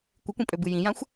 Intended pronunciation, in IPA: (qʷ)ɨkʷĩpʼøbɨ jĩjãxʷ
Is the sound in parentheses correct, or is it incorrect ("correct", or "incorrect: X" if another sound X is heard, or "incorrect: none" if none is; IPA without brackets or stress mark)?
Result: incorrect: kʷ